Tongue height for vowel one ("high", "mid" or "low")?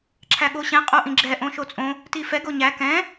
low